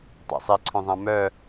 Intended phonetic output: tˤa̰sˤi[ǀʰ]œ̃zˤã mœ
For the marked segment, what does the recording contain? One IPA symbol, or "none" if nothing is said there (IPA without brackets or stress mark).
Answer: ǀʰ